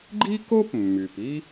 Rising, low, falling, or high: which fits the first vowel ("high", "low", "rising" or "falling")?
high